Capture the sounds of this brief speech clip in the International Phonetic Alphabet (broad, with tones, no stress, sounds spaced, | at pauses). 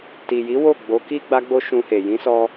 t i˨ j i˨˦ w o˦˨ ɡ͡b o˨˦ k i˦ ɡ͡b a˦ ɡ͡b o˦ ʃ ũ˧ h e˨ j ĩ˨˦ s ɔ˧